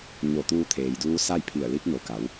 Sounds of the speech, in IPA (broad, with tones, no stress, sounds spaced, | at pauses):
ɲ o˧˩ t̪ uː˧ t̪ʰ eː˩ j d uː˧˥ s a˥˨ j pʰ i˧˩ ə̯ l i˧˥ p̚ n o˩˧ k a˩˧ w